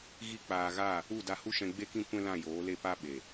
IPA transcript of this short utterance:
ɣ i˦ k͡p aː˧ ɣ a˦˨ | u˦˨ d a˧ h u˦ ʃ ɛ̃˧ ɡ͡b e˦ k ĩ˦ kʷ ɛ̃˦ l ã˦˨ j oː˨˦ l e˦˨ p a˦ ɓ e˨

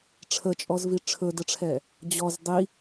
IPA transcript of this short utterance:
ʈ͡ʂʰ ə t͡ʃʼ ɔ z v i ʈ͡ʂʰ ɵ d ə ʈ͡ʂʰ ɛ | d͡ʑ ɔ z dˤ i

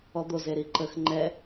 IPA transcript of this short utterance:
ɔ d̪ o z e ɾ i ǃ ə x ŋ͡ǃ ɛ

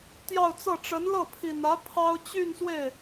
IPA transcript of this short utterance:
t̪ j ɑ˥˧ ʊ̯ t͡s ɤ˥˩ ʈ͡ʂ ə˧˥ n l ɤ˥˩ pʰ i˨˩ n ä˧˥ pʰ ɑ˥ ʊ̯ t͡ɕ y˥˧ n s w e˥˩ ɪ̯

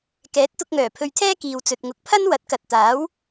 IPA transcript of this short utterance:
k ɛː˨˥ t̚ t̪ ʊ˧ k̚ ŋ œː˨˩ pʰ ɵ˧ ɥ t̪ʰ ɛː˥ k iː˨ w t͡s ɵ˨ t̚ ŋ ʊ˨˥ k̚ pʰ ɐ˥ n w ɐ˨˥ t̚ k ɐ˨ t̚ t̪ aː˨˥ w

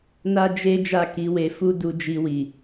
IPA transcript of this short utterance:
n a˦ d͡ʒ e˦ d͡ʒ a˦˨ k i˨˦ w e˧ f u˦ d u˧ d͡ʒ i˧ w i˨

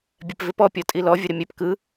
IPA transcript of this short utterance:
bʲ ɛ p v ɪ p ɔ pʲ ɔ tʼ i l ɔ vʲ ə ɾ ɪ mʲ ɛ p k ɯ

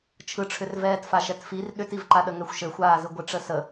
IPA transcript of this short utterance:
t͡ʃʰ ɯ ʈ͡ʂʰ ʏ r v ɛː t f a ʃ ɛ t f i r ɗ ʏ t i v ǃ a ɗ ə ŋ ɛ xʷ ʃ ɘ xʷ aː z ɯ ɡʷ ɪ ʈ͡ʂ ə s ə

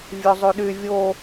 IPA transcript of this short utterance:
vʲ ø zˤ y ɗ y vʲ o

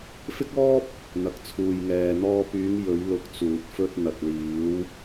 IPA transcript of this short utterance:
f ɪ˥ k̚ ɔː˥ p̚ | n̪ ɐ˨ k̚ t͡sʰ uː˨ j ŋ ɛː˨ n̪ ɔː˧ p yː˨˧ ŋ j ɵ˨˧ ɥ l ʊ˨˥ k̚ t͡s uː˨ t̚ f ɵ˧ t̚ n̪ ɐ˨ t̚ l iː˨˧ w

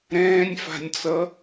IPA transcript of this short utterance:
ɾ ɛ̃ː nʲ f a̤ nʲ t͡s ʌ

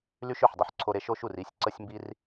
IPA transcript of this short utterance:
l y˦ ʃ ø˨ ħ dˤ u˨ ħ ǀʰ o˧ ɾ e˨˦ ʃ o˧ ʃ u˨ r i˦˨ sʲ ǀ ə˧ sʲ m b i˧ r

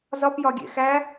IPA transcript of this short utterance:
z ɒ p j ɒ ɡʲ ḛ x æ

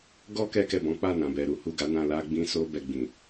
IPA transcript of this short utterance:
ɡ ɔ˦ k ɛ˧ k ɛ˨ b ɔ̃˨˦ k͡p a˦˨ n ã˨ b ɛ˨ ɾ u˨˦ h u˦˨ ɡ a˨˦ n ã˧ l a˧ ɡ͡b ĩ˧ s o˧ b ɛ˧ ɡ͡b ĩ˨

